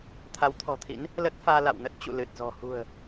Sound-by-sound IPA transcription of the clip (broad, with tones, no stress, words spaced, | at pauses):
t̪ʰa˨˦wt̪ʰɔ̤˨˩t̪ʰḭ˧˥n | lə˦˥t̚faː˧ la̰˧˨wnə˦˥t̚ t͡ɕṵ˧˨ lɨ˨˩t̚zɔ̤˨˩ hṳ˨˩ə̯